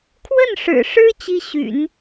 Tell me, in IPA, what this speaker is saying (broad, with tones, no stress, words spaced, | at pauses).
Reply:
kʰwə˥˩nʂɻ̩˨˩ʂɻ̩˥ t͡ɕi˥ɕy̰˨˩˦n